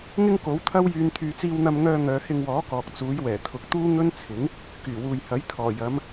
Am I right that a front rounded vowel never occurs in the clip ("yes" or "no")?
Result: no